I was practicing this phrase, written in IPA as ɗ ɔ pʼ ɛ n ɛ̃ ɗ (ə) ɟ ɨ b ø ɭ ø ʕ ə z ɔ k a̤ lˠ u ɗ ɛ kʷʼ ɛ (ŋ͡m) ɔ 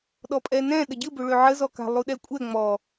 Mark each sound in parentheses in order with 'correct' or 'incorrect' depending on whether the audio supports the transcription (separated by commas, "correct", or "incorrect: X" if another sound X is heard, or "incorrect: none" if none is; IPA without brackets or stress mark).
correct, correct